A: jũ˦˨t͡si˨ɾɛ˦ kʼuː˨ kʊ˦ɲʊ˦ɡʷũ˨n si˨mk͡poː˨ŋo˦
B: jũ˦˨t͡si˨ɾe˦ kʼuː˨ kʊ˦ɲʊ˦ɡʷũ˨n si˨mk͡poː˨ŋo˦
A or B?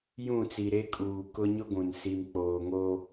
B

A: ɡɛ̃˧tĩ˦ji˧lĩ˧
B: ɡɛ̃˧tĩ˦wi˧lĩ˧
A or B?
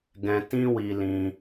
B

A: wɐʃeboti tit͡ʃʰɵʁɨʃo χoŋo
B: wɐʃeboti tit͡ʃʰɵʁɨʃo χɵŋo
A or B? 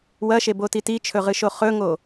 B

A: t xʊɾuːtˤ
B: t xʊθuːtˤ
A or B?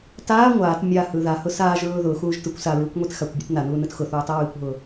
B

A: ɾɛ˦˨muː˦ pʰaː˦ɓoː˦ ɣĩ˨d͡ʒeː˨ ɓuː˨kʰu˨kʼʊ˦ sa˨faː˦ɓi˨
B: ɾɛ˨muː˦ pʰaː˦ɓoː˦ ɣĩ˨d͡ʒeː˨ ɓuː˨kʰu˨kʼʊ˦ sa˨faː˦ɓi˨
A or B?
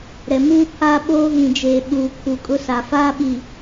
B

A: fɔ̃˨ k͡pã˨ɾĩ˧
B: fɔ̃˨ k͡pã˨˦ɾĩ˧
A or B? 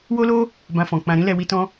A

